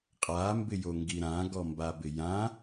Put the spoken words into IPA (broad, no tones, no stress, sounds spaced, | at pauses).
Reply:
qʼ a m b ɪ j o ŋ ɡ i ɾ ã ɡ ɔ m b a b ɪ j ã